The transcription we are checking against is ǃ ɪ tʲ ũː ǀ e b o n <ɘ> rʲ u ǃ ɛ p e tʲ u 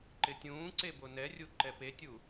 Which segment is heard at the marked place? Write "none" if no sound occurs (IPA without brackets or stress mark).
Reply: ɛ